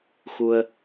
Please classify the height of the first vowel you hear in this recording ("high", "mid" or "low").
high